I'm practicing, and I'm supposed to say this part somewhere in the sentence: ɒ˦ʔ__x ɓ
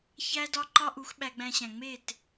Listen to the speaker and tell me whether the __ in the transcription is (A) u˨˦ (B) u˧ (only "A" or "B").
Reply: A